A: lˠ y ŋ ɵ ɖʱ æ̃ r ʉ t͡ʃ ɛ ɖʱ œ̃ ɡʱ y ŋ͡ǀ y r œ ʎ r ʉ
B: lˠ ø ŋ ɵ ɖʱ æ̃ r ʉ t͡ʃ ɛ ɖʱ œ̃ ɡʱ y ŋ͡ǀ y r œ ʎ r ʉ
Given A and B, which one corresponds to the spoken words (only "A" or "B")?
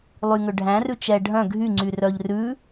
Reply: A